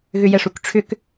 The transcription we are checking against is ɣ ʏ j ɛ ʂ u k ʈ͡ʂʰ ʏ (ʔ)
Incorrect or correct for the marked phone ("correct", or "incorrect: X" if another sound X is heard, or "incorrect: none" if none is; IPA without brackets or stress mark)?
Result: incorrect: k